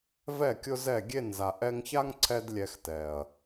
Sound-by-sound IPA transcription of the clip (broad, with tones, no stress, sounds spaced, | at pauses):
v ɛ˦˨ kʲ ʊ˦ z ɛ˦˨ ɡʲ e˦˨ n z a˨ ʔ ɛ˧ ŋ ç a˦ ŋ ǀʰ ɛ˧ d lʲ ɛ˧ x t ɛ˨ ɐ̯